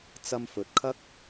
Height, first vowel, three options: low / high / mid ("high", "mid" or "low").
low